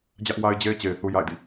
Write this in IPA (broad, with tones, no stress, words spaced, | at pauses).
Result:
d͡ʑä˦ʔwa˦ɪ̯d͡ʑe˦ɪ̯t͡ɕe˨ɪ̯ θu˦ja̰˦˨ɪ̯dḭ˦˨